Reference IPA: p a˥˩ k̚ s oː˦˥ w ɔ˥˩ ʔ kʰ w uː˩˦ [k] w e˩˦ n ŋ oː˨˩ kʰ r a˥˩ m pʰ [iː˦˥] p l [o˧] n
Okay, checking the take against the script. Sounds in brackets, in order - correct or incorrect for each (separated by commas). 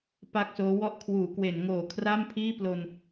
correct, incorrect, correct